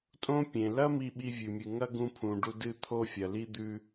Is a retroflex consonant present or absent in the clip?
present